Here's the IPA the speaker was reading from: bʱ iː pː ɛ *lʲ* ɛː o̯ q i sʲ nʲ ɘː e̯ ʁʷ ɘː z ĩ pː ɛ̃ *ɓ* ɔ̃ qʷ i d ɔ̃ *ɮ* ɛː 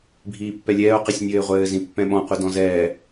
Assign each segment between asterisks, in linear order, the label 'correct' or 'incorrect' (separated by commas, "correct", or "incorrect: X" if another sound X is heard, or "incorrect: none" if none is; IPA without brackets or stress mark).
correct, correct, incorrect: z